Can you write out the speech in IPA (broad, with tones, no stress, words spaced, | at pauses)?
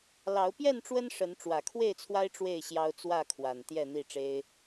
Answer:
lɑ˨˦ʊ̯ pjɛ˥˨nʈ͡ʂwə˦n ʂə˨˦n ʈ͡ʂwä˨˩kʰwe˥˨ɪ̯t͡sʰwa˦ɪ̯ ʈ͡ʂwe˥˨ɪ̯ɕjɑ˦ʊ̯ t͡swä˥˨kʰwa˨˩n t̪jɛ˥˨n̪i˥˨ ʈ͡ʂe˦ɪ̯